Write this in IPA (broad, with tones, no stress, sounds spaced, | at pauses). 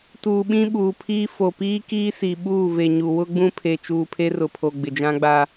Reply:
t uː˨ ɓ ĩ˦ ɓ uː˨ pʰ iː˦ f o˨ p iː˦ k iː˦ s i˨ ɓ uː˦˨ v e˨ ɲ u˨ w ʊ˦ ɡ͡b ũ˦ pʰ e˨ t͡ʃ uː˨ pʰ e˦ r ʊ˨ pʰ o˨ ɡ͡b ɪ˨ d͡ʒ ã˦ ɡ͡b a˦